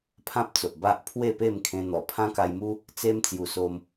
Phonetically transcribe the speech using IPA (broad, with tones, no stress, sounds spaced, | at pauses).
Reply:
pʰ ã˦ p̚ t͡s o˨ ʔ b a˦ ʔ pʰ w e˥˧ p e˥˧ m kʰ ẽ˧ n̪ ɔ˨˩ pʰ ã˦ k a˧ j m u˦ | t͡s e˦ m t͡s j u˨˩ s o˧ m